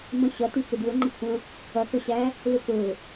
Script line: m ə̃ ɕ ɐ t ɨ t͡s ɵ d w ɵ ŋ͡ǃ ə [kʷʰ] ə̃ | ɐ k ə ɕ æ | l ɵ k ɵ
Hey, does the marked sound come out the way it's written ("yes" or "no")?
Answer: yes